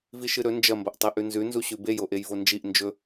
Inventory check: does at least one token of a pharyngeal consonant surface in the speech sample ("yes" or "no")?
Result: no